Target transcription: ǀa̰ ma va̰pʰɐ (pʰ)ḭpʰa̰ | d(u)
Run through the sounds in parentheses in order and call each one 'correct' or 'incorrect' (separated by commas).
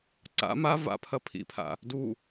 correct, correct